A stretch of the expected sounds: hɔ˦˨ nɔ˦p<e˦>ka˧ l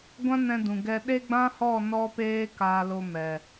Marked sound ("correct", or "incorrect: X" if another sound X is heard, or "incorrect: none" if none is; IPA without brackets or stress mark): incorrect: eː˦